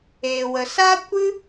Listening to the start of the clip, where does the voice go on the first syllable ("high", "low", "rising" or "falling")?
low